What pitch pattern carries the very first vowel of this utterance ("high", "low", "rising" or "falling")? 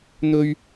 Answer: high